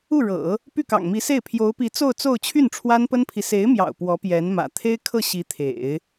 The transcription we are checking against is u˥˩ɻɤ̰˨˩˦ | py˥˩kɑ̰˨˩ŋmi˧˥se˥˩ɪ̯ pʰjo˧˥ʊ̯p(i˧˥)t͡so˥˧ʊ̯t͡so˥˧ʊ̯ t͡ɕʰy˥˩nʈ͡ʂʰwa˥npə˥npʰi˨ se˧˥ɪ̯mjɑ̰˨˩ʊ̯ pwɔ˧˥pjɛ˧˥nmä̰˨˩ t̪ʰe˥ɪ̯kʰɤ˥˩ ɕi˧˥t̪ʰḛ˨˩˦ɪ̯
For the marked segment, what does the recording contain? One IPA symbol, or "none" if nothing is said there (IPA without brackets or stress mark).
i˧˥